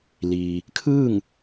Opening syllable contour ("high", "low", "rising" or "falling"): low